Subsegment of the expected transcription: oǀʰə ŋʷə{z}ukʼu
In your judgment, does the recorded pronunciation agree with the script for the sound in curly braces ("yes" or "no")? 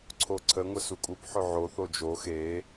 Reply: no